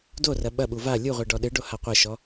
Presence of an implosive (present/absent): present